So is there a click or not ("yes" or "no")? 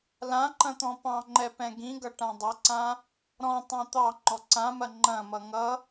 yes